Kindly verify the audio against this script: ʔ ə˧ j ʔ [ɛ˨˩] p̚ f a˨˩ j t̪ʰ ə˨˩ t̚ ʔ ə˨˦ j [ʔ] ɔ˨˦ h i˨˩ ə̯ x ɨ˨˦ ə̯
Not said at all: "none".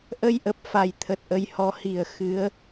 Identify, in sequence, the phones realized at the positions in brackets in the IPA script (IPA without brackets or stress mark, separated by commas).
ə˨˩, h